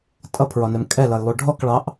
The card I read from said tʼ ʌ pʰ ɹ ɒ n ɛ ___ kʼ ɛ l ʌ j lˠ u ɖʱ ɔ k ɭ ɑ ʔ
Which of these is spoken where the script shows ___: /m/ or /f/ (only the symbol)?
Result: m